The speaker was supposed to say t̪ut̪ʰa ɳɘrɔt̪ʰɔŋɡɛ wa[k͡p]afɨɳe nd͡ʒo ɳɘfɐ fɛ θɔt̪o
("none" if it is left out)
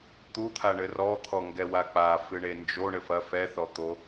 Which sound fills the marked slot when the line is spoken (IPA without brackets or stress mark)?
k͡p